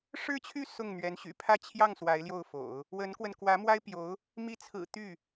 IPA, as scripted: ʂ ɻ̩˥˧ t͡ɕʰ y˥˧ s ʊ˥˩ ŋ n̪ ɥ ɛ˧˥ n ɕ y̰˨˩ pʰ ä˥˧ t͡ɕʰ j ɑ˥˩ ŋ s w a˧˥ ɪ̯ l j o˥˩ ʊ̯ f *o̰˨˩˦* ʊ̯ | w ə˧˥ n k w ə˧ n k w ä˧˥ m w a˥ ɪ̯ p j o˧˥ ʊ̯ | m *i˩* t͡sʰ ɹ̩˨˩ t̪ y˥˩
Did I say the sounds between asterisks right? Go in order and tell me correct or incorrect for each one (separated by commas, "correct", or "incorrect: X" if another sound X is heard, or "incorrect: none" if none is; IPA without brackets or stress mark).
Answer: correct, incorrect: i˧˥